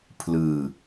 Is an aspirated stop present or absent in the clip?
present